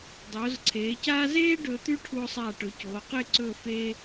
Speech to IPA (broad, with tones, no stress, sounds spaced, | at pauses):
dˤ oː˩˧ z ǀʰ eː˩˧ c aː˥ z eː˥ ɖ ɵː˧ t̪ ʉ˥ ʈʰ u˧ o̯ sˤ aː˧˩ ʈ ɵ˩˧ c oː˩˧ q e˥˧ ǀ ɵ˥˧ f e˥